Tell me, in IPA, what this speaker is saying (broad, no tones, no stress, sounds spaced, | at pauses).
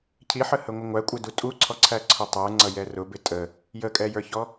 cʰ i ħ ə h ə ŋʷ ɪ ŋʷ æ kʷʼ ɪ d u tʼ u ǀʰ ɔ ǀʰ æ ǀʰ ʊ tˤ ə˞ ŋ͡ǀ ʌ j ɛ r ʊ b ɪ tʼ ə | j ə kʼ ɛ j ə˞ ç ɔ